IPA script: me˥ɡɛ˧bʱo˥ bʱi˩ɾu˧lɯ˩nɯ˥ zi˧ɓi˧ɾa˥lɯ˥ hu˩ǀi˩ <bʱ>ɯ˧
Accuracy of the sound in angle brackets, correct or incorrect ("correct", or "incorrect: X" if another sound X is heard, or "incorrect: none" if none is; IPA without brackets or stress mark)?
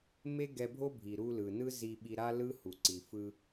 incorrect: f